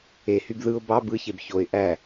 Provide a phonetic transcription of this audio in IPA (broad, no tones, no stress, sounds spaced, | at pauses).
e h y b ð ɯ ʊ̯ b ɑ b ɯ ç e b ç o ɪ̯ ʔ æ